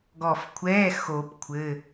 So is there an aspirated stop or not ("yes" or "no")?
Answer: yes